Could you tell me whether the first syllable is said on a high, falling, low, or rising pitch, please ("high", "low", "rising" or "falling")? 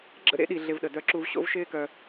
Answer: high